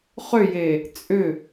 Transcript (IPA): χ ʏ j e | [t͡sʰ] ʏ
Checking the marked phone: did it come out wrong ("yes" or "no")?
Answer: yes